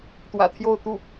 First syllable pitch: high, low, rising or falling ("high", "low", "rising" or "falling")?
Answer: low